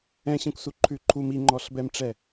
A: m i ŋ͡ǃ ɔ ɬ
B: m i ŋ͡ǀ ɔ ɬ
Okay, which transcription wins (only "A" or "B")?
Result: A